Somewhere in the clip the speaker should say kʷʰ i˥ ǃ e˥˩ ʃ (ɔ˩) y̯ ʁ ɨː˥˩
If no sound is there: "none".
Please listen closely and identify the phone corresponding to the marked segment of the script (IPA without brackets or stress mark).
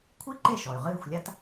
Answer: ɔ˩